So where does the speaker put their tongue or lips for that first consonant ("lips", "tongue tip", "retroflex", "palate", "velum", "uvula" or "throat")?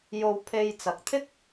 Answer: palate